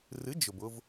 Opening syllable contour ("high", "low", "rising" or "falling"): rising